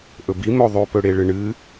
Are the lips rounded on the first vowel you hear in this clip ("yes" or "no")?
yes